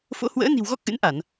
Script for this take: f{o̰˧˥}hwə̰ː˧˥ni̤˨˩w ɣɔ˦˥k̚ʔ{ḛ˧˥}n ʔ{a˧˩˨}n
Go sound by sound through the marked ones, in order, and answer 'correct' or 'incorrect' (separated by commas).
correct, incorrect, correct